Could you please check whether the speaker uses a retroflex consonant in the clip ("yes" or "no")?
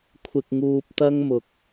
no